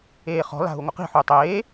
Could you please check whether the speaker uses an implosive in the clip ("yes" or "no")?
no